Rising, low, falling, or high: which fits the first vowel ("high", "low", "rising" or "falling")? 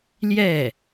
falling